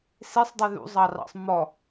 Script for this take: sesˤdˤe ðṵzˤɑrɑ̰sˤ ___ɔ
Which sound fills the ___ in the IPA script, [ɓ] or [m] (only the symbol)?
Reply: m